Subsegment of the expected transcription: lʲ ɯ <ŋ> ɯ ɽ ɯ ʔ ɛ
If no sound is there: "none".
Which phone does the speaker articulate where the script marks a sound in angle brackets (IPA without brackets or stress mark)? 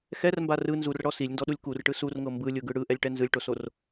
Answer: ɡ